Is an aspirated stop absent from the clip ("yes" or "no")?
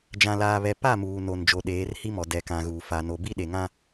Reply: yes